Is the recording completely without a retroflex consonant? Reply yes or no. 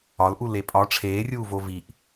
no